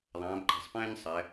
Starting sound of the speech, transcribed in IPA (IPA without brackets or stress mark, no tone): ðˤ